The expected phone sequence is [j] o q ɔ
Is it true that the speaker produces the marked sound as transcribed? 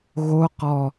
no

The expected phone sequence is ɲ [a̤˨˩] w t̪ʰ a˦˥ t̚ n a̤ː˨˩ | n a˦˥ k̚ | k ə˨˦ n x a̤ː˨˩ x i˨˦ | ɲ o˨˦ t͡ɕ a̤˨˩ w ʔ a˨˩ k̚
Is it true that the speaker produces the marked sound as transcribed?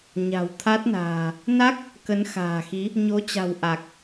yes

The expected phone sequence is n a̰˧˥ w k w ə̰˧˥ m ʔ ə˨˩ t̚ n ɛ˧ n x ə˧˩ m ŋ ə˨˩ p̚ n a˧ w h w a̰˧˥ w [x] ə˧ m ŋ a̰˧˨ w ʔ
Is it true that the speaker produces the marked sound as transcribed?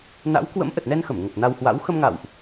yes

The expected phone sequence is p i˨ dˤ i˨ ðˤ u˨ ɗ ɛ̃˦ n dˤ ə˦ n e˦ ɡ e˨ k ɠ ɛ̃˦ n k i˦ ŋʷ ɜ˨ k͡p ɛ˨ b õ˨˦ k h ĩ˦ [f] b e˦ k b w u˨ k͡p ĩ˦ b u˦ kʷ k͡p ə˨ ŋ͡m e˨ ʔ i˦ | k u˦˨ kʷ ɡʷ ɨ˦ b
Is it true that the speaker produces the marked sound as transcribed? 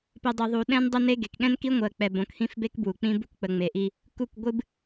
yes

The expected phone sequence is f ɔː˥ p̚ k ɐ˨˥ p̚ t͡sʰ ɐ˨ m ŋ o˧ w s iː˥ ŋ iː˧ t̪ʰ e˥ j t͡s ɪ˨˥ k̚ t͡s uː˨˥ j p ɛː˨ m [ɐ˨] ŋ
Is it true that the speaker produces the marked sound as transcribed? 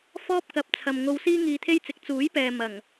no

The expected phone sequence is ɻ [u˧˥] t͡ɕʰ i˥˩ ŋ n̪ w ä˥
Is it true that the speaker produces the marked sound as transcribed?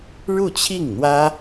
no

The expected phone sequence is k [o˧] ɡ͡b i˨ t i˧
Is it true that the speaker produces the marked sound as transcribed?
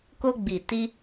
yes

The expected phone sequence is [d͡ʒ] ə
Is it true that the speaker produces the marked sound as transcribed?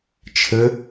no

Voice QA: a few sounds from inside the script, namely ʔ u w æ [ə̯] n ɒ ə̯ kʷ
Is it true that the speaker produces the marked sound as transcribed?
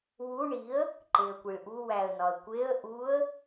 yes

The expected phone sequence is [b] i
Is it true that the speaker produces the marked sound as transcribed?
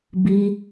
yes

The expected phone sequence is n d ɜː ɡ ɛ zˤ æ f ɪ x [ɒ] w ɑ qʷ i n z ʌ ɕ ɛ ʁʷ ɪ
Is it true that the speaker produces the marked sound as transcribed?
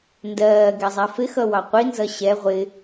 no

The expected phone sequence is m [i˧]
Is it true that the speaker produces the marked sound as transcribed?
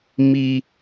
yes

